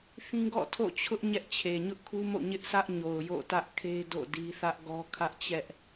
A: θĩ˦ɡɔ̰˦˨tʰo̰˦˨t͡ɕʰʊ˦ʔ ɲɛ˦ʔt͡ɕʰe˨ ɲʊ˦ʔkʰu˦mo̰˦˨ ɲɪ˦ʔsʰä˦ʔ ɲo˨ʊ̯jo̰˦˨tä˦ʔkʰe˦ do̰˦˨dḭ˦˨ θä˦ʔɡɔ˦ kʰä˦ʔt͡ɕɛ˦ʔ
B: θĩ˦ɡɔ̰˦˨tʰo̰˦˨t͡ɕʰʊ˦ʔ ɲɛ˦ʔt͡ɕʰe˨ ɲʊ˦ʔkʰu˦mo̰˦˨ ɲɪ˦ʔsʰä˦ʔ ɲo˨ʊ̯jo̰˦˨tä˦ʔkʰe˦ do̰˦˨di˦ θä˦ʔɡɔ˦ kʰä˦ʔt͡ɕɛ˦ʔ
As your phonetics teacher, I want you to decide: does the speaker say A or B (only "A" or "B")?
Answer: B